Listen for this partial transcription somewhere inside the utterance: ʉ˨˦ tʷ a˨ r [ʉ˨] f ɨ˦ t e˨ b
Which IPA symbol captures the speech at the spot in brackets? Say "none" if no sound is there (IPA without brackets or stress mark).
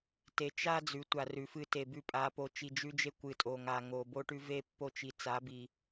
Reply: ʉ˨